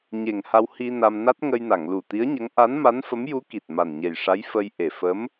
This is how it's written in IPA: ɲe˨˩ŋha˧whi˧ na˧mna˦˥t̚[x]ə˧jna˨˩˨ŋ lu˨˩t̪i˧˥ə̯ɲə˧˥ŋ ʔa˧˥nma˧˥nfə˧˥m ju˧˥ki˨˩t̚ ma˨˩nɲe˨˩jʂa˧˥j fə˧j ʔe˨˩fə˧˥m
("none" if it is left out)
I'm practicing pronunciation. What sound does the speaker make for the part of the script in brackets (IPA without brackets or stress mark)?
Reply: ŋ